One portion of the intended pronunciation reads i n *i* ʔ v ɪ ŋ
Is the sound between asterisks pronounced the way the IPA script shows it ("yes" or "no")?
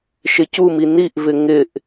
yes